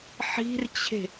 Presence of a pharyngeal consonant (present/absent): present